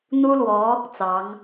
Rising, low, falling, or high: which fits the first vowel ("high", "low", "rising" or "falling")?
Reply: high